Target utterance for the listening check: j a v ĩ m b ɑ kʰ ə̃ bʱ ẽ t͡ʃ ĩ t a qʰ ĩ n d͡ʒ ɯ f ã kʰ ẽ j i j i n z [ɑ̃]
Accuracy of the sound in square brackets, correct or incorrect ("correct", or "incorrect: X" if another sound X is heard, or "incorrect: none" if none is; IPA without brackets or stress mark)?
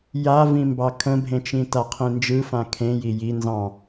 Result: correct